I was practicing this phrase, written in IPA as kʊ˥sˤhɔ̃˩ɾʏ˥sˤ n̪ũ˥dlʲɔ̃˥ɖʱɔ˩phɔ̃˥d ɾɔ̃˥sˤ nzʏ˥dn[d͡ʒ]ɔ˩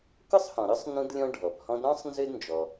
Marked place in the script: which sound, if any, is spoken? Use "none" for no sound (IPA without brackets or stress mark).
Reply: d͡ʒ